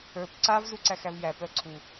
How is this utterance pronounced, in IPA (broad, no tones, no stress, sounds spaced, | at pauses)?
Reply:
ə˞ p ǀ a v z u ǀ æ x æ v j æ p œ ǀʰ u